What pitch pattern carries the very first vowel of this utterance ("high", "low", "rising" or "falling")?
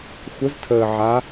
rising